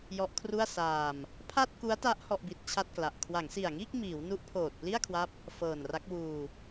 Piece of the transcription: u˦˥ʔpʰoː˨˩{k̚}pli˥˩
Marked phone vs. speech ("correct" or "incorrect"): incorrect